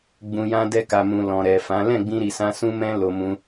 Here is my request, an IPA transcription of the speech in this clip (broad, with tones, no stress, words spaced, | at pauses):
ɡ͡bũ˨jã˧ dɛ˧ka˨mũ˨ lɔ̃˨ɾɛ˨fã˨˦ lɛ̃˦˨ɡ͡bĩ˧ɾi˨sã˧ sũ˦mɛ̃˦ lo˧mũ˧